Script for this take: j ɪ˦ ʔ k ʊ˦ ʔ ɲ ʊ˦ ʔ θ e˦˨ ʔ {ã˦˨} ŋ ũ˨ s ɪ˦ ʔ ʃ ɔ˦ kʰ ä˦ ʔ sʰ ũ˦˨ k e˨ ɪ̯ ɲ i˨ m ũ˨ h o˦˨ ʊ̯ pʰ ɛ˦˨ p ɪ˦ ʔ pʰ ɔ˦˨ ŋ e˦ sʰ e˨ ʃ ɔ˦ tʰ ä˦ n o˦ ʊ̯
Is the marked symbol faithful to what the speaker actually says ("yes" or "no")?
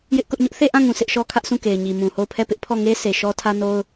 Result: yes